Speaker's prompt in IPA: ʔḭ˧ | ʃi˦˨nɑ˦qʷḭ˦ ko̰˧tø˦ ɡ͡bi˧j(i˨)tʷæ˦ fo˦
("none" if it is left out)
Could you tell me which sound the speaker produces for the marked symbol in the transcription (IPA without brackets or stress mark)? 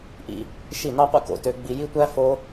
i˦